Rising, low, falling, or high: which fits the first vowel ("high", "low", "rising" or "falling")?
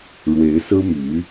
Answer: rising